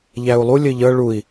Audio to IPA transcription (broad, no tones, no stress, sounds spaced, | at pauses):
ʎ æ u̯ lˠ u lʲ ɘ ʎ ɤ ɭ u i̯